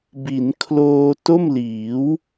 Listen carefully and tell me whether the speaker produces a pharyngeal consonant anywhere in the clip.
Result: no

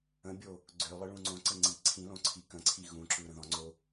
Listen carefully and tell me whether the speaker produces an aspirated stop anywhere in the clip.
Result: yes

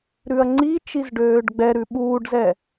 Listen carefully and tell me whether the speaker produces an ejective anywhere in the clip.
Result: no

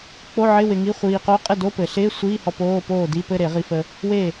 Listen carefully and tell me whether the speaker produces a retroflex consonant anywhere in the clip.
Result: no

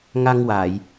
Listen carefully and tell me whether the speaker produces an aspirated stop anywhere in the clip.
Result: no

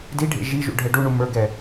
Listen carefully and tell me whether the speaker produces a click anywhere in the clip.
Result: no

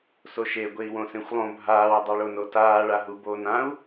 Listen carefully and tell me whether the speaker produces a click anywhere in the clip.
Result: no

